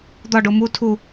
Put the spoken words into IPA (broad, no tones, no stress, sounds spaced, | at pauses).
d̪ ɒ ɖ o m u tʰ u